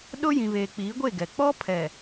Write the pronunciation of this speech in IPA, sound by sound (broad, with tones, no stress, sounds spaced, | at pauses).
ɗ ʊ˦ j ĩ˨ β eː˨ k͡p iː˨˦ ɡʷ e˦˨ ɡ ɛ˨ k͡p ɔ˦ pʰ ɛ˨